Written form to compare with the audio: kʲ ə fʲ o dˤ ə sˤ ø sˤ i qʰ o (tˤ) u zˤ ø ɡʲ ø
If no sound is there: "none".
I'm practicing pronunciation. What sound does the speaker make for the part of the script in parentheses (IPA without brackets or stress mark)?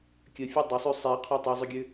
tˤ